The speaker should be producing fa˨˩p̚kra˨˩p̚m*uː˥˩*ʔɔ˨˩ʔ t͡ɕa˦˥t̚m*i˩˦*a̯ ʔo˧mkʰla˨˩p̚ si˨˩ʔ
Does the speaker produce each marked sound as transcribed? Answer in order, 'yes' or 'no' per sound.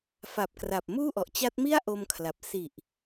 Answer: yes, no

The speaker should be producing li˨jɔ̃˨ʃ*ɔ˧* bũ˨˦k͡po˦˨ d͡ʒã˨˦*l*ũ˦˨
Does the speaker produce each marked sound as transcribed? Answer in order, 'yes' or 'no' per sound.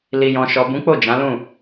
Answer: no, yes

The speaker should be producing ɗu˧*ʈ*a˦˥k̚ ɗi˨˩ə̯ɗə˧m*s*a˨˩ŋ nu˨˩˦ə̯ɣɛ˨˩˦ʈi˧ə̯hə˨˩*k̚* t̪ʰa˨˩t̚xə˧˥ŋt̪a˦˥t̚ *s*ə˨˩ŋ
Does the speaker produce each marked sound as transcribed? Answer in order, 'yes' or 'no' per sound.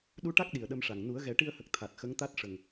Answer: yes, no, yes, no

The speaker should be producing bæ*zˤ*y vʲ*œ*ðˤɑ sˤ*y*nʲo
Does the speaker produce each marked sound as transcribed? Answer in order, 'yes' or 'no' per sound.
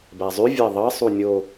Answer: yes, no, no

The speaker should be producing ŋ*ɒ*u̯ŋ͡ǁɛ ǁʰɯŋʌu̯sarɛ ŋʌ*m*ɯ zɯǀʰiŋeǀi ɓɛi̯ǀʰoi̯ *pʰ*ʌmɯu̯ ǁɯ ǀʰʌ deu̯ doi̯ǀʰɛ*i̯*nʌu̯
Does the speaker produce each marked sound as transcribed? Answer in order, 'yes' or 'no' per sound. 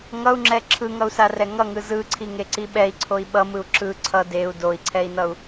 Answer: no, no, no, yes

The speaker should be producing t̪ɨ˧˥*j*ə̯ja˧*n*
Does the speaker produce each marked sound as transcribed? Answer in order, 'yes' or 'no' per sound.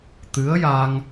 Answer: no, no

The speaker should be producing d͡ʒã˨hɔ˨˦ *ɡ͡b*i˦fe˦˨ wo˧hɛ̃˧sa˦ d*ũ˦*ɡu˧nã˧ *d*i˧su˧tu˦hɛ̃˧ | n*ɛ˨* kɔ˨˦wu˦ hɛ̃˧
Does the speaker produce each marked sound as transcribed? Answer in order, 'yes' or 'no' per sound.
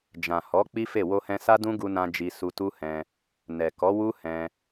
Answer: no, yes, no, yes

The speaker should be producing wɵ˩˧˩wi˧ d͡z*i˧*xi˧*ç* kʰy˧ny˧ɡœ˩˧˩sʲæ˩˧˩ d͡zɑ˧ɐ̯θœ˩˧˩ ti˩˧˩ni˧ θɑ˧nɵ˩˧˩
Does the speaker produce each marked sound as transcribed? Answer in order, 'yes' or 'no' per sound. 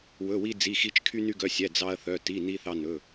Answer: no, no

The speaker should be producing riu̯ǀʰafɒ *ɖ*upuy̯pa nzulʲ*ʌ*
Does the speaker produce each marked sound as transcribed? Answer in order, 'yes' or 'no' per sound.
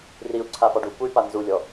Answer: yes, no

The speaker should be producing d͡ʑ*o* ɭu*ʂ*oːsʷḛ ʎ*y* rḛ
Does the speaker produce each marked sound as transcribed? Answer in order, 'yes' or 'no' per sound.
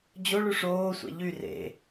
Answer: yes, yes, yes

